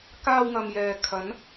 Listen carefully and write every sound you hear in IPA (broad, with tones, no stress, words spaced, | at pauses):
kaː˧wŋɐ˨m jɛː˨ kʰɐ˨˧n